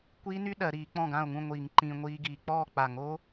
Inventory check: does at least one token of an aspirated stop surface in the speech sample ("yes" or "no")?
no